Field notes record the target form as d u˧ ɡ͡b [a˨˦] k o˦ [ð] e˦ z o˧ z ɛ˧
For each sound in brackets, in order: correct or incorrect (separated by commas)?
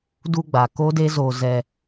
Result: incorrect, incorrect